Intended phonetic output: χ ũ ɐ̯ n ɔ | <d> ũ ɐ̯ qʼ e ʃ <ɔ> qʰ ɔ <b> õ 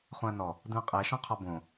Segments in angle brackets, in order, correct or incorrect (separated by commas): correct, incorrect, correct